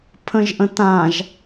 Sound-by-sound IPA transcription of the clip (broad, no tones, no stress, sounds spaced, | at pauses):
pʰ ə̃ ʒ ʔ ə̃ t ã ʒ